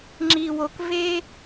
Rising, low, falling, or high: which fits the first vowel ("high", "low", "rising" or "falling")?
low